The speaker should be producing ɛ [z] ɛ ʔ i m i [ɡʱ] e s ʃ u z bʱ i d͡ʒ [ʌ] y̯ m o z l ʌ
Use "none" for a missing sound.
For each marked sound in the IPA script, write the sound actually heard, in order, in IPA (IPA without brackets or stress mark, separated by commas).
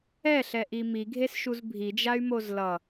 ɬ, ɡʱ, a